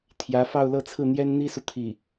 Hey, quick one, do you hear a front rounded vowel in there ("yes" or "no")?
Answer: no